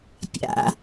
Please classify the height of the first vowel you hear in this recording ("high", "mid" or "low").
low